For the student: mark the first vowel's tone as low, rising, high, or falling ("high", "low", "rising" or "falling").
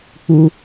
high